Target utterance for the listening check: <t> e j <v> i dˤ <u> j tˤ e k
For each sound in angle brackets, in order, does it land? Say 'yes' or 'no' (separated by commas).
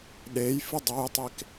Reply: no, no, no